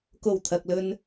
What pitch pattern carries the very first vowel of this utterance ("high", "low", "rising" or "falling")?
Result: low